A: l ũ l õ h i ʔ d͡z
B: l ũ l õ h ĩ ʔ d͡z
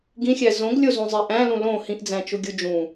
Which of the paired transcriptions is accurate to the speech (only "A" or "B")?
B